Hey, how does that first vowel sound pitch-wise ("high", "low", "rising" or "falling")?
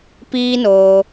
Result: high